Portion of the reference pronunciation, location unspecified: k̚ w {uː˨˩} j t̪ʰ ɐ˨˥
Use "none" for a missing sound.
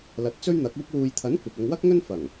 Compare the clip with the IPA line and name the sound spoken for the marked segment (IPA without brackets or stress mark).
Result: uː˨